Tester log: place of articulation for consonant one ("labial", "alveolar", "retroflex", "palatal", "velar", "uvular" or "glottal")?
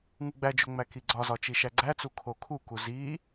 velar